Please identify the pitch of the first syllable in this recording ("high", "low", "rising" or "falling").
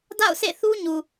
falling